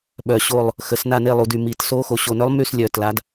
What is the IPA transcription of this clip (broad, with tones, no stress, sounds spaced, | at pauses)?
ɓ œ˨˩ ɕ o˦˨ lˠ | x ə˩˧ s n a˦˨ n e˦˨ lˠ u˨˩ d y˨˩ m i˨˩ t s o˧˥ x o˨˩ ɕ o˨˩ n œ˧˥ lˠ m y˦˨ s lʲ œ˨˩ t l a˩˧ d